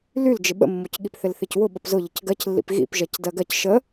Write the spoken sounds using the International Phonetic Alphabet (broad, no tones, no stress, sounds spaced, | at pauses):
l y l d͡ʒ ɪ ɓ ə̰ mː o c ɠ i p θ ɪ l θ i c w ʊ ɓ ə p z ʊ ʎ ə c ɡ ɜ c lː ḭ p ɣ ḭ p ʒ ɜ c d ɜ ɡ ɜ c ʃ ə